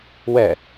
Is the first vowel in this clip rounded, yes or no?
no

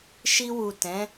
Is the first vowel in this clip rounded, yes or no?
no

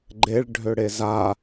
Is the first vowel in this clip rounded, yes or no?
no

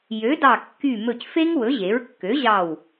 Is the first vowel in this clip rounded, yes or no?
yes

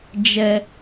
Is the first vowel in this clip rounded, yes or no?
no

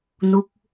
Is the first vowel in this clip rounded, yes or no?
yes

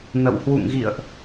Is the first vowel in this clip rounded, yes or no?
no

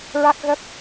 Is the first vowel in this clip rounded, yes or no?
no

